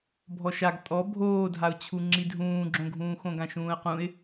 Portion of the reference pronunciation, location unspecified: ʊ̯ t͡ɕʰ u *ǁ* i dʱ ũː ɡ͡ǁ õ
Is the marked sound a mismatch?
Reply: yes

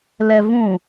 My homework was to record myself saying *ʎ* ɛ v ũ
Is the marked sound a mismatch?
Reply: yes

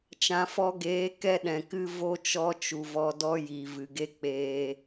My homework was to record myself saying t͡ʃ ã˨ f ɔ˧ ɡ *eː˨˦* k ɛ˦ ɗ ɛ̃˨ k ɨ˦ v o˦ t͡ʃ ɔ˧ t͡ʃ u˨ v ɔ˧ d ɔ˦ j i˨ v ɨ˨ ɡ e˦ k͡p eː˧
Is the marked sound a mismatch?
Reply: no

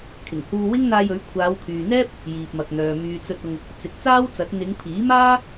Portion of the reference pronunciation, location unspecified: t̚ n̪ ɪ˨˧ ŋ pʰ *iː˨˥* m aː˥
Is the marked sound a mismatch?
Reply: no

